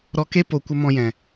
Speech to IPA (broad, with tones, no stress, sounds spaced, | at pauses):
ɾ ɔ˧ k e˦ p o˧ kʷ ə˦ m ɔ̃˧ j ɛ̃˨